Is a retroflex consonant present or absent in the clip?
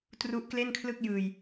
absent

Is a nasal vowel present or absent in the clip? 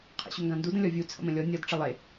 present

